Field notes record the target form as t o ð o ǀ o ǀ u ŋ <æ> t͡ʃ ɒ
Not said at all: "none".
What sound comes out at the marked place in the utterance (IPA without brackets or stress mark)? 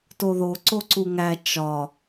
æ